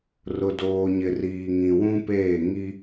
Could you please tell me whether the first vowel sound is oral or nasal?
oral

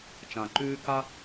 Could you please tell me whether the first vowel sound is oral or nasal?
nasal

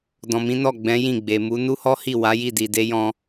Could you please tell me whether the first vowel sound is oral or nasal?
nasal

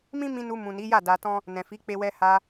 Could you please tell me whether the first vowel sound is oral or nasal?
nasal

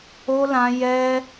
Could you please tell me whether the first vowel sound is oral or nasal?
oral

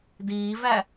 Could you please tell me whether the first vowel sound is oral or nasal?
oral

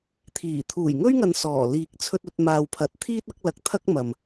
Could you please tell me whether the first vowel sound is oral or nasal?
oral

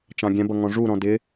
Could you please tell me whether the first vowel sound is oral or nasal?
nasal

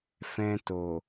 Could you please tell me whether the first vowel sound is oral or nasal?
nasal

